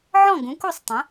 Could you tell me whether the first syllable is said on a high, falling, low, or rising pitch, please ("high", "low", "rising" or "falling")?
falling